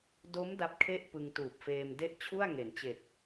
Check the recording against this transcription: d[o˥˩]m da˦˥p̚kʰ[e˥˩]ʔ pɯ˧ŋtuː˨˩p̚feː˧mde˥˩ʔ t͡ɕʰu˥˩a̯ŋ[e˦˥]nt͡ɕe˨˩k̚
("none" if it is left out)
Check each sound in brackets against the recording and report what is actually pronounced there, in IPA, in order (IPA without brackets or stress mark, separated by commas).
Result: o˦˥, e˥˩, e˩˦